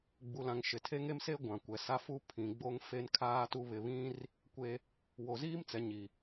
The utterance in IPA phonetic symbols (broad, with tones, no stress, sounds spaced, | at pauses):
ɡ͡b u˨ l ã˨ ŋ ʃ ɪ˨ tʰ e˦ ŋ e˦ m s e˦ ɡʷ ã˨ kʷ ɛ˨ s a˦ f u˦ pʰ ĩ˨ ɡ͡b o˦ ŋ f e˦ n kʰ aː˦ t u˦ β ɪ˨ β ĩ˦ r | kʷ e˦ | w o˨ z iː˦ m t͡s ɛ˨ ɲ i˨